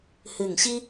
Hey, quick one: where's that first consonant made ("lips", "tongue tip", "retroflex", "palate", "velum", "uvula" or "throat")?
throat